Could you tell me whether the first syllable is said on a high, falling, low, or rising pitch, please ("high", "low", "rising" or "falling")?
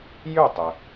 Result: falling